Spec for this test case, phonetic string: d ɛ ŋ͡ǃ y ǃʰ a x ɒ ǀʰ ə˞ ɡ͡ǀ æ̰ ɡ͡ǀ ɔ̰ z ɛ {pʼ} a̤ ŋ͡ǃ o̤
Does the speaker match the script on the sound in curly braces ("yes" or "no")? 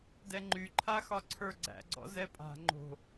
yes